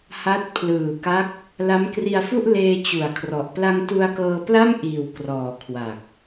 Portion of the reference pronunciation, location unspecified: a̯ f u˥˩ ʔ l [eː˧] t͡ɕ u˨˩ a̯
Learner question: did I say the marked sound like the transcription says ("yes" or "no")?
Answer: yes